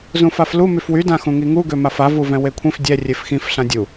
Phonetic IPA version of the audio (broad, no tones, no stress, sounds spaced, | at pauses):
z ũ f a f l u m y f w y d ã x ũ ŋ i ŋ u ɡ ø m a f a v u v ɛ̃ w e kʷʰ ĩ f dʲ ɛ rʲ e f x ĩ f ɬ ã dʲ u